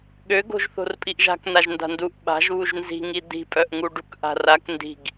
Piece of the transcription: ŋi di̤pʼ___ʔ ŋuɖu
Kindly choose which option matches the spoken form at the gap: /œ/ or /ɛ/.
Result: œ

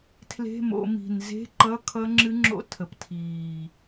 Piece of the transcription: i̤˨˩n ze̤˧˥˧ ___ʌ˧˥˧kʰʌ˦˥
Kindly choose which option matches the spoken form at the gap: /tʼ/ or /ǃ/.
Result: ǃ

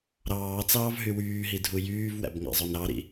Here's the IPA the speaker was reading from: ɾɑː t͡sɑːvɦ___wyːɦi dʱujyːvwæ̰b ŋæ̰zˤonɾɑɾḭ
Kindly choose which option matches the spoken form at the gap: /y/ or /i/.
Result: y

